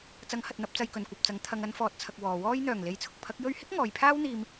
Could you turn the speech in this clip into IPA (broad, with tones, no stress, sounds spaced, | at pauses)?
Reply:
t͡s ɐ˨˥ ŋ h ɐ˨ t̚ n̪ ɐ˧ p̚ t͡s ɐ˧ j k ɵ˨ n kʷ ɐ˨ p̚ t͡s ɐ˨˥ ŋ t̪ʰ ɐ˨ ŋ ɐ˨˧ n f ɔː˨ t̚ t͡sʰ ɐ˨ k̚ w ɔː˨ w ɔː˥ j n̪ œː˨˩ ŋ l e˨ j t͡sʰ ʊ˨ k̚ pʰ ɐ˨˥ k̚ j ɵ˧ ɥ h ɪ˥ k̚ ŋ ɔː˨ j pʰ aː˥ w n̪ iː˧ m